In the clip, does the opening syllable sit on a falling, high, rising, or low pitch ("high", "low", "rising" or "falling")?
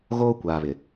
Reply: high